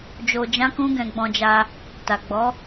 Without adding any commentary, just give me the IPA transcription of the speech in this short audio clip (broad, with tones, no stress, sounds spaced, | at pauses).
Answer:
d͡ʒ o˧ d͡ʒ ã˦ k ũ˦ ɡ ɛ̃˧ ɡ͡b ɔ̃˧ d͡ʒ a˧ | t a˨ ɡ͡b ɔ˨˦